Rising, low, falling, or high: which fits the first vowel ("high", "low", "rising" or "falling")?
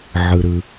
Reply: low